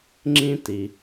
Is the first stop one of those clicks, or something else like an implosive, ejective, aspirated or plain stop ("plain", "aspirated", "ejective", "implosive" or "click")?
click